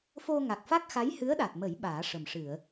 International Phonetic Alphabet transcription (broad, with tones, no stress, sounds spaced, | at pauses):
f o˧ ŋ a˨˩ k̚ f a˦˥ k̚ x a˧˥ j h ɨ˧˥ ə̯ ɗ a˨˩ t̚ m ə˨˩˦ j ɓ aː˨˩˦ ʂ ə˨˩ m ʂ ɨ˨˩˨ ə̯